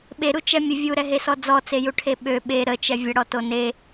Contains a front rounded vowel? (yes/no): yes